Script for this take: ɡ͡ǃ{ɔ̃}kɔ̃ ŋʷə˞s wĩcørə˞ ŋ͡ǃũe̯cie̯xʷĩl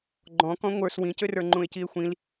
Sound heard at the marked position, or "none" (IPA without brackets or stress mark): ɔ̃